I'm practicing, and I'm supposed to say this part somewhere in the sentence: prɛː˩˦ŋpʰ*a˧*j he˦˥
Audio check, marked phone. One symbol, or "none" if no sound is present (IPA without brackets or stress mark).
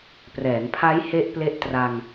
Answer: a˦˥